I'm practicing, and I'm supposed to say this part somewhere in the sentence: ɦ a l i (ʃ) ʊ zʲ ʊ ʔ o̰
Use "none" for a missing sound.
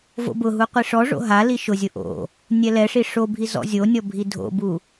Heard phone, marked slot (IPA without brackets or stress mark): ʃ